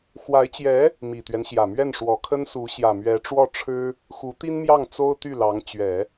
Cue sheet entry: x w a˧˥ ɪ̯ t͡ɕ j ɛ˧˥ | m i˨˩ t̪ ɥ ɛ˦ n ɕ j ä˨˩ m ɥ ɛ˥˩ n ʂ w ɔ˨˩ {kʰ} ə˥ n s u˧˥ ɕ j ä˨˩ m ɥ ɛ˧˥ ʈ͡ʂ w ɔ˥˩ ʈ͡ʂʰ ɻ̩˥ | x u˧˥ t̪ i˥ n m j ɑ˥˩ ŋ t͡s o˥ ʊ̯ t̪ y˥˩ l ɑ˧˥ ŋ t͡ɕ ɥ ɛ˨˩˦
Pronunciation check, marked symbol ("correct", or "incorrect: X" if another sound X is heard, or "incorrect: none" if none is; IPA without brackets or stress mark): correct